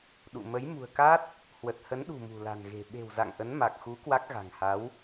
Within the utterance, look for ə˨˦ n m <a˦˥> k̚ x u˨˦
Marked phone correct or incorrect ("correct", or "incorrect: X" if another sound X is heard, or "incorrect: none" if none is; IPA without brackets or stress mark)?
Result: incorrect: a˨˩